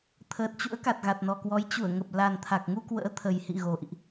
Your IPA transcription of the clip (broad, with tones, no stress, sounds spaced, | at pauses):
t̪ʰ əː˨˩ t̚ t͡ɕ ṵ˧˥ ə̯ k a˨˩ t̚ ɣ a˨˩ t̚ n ɔ˨˩ k w ɔ˨˦ j t͡ɕ u˧˩ ə̯ ŋ ə˨˩ p̚ l a˨˩ n t̪ʰ a˨˩ k̚ ŋ u˧ k w ə̰ː˧˥ t̪ʰ ə˨˩ j h ḭ˧˨ ɣ o˨˩ ʔ ḭ˧˨ ʔ